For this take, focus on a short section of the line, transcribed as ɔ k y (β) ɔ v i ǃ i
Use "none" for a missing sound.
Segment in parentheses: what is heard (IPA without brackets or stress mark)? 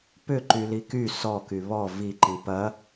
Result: β